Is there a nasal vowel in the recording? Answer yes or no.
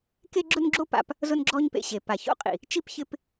no